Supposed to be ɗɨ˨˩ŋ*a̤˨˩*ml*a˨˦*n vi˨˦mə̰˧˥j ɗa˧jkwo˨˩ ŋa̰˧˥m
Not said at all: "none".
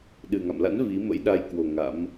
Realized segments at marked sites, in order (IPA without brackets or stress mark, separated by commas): a̰˧˨, a̰˧˥